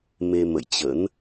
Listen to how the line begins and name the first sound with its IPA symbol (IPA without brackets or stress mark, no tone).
m